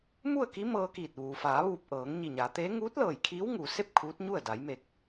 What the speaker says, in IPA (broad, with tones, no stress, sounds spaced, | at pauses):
m u˥˨ ə̯ k i˧˥ m ɤː˧ k iː˧˩ t̚ ʋ uː˩ f aː˩˧ ʋ uː˧˩ p̚ ʔ ɤː˩˧ ŋ ɲ i˧˩ ɲ aː˩˧ t̪ eː˧˥ ŋ uː˧˥ t̚ l ɤː˧˩ j kʰ iː˧˥ w ŋ uː˩ s e˥˨ p̚ kʰ uː˧˥ t̚ ɲ u˥˨ ə̯ d a˩˧ j m e˧˩ k̚